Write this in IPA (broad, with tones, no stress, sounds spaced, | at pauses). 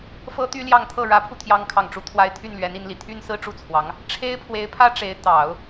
f ɤ˥ t̪ y˥ l j ɑ˥˧ ŋ t̪ʰ ɤ˥˩ ɻ ä˧˥ pʰ u˧ t̪ʰ j ɑ˥ ŋ kʰ ɑ˥˩ ŋ ʈ͡ʂ u˥ t̪ʰ w a˧˥ ɪ̯ t̪ʰ y˥˩ n l ɥ ɛ˧˥ n i˧˥ n l i˨˩ t̪ʰ y˥ n s ɹ̩˥ ʈ͡ʂ u˥˩ t͡sʰ w ɑ˧˥ ŋ | ʈ͡ʂʰ e˥ ɪ̯ pʰ w e˧˥ ɪ̯ pʰ ä˥ ʈ͡ʂ e˧˥ ɪ̯ t̪ ɑ˨˩˦ ʊ̯